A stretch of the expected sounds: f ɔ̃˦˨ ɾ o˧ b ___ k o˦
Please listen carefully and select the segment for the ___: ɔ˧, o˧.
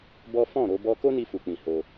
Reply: ɔ˧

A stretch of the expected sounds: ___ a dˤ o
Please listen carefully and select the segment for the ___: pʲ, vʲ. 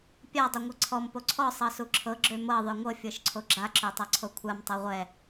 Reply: pʲ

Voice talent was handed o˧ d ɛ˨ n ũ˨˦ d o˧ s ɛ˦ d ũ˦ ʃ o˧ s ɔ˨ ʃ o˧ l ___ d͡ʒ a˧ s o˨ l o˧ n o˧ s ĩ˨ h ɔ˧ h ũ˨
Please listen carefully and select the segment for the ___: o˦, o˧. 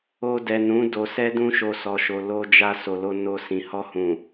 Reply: o˧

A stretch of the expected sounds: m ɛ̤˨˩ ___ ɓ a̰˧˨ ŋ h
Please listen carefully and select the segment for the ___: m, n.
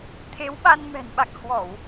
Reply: n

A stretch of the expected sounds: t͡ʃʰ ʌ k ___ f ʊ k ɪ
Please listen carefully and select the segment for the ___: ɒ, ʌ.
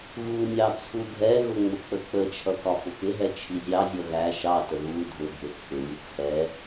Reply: ɒ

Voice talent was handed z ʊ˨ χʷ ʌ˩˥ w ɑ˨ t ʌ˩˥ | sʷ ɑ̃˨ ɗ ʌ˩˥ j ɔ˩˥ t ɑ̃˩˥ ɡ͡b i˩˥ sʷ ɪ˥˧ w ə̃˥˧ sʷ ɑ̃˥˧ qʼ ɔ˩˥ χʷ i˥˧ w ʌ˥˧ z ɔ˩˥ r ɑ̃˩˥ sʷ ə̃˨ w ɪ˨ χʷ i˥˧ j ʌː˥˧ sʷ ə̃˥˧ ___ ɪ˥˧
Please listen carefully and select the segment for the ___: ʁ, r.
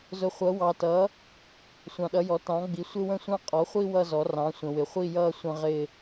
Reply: ʁ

